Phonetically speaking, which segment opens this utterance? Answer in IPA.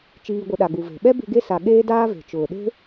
t͡ʃ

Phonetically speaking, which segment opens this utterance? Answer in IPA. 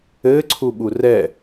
ɘ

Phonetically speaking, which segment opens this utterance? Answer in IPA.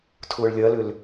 tʰ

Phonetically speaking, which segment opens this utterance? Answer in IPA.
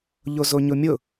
ʎ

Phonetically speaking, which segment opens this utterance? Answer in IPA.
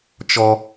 t͡ʃ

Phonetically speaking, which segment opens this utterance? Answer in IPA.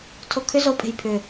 tʰ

